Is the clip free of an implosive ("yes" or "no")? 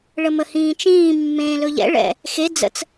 yes